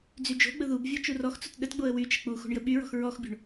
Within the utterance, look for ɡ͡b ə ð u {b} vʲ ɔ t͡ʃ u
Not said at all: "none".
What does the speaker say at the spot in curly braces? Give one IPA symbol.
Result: b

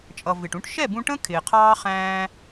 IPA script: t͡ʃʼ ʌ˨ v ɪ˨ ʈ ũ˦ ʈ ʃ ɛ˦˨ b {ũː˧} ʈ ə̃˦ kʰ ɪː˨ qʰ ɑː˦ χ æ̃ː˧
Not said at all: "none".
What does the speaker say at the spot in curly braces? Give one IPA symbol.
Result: ũ˧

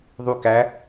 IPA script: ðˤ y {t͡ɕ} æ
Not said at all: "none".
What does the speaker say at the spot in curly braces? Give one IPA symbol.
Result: k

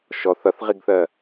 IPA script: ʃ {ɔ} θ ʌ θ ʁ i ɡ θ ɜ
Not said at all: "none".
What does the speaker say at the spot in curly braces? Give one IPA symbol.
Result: ɔ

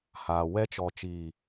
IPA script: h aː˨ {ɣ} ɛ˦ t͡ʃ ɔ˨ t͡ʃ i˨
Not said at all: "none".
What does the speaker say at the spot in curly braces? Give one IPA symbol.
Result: w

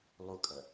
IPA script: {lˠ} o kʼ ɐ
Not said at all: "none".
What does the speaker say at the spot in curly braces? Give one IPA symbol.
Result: lˠ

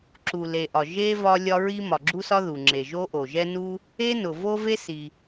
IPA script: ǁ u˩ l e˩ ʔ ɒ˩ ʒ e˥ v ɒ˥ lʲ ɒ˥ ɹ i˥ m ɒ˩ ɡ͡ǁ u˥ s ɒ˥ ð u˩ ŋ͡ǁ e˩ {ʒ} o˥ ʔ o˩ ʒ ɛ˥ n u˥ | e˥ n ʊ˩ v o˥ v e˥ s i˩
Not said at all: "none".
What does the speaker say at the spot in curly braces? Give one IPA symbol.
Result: ʒ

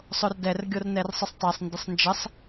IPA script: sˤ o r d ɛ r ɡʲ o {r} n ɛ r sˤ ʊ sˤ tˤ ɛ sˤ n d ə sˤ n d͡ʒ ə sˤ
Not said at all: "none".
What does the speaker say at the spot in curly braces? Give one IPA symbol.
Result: r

